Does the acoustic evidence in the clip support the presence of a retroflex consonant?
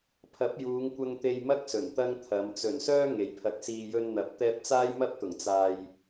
no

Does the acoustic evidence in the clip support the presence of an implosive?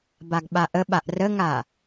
yes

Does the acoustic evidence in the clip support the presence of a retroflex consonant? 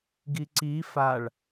yes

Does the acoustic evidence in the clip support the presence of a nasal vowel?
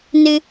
no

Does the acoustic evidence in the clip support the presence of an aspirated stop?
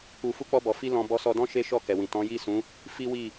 no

